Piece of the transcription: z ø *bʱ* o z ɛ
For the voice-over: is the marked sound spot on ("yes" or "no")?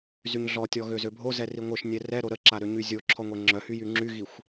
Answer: yes